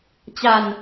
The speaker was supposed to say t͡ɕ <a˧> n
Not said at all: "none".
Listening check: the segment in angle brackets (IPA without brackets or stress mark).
a˧